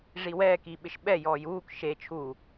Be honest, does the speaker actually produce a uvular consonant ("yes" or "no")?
no